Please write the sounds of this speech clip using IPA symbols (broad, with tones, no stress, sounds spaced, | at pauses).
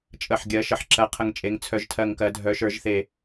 t͡ʃʼ ə˨˩ ħ ɡʲ ɜ˩˧ ʃ ə˩˧ ħ ǁ ɜ˩˧ qʰ ə˨˩ ŋ t͡ʃʼ e˩˧ ŋ t͡sʰ œ˨˩ ʒ tʰ ɜ˨˩ ŋ k ɜ˩˧ dʱ œ˩˧ ʃ ə˞˩˧ ʒ θ e˨˩